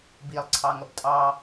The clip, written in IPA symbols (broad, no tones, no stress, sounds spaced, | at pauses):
b i lˠ ǀʰ ɑ ŋ ʌ b tʼ ɑ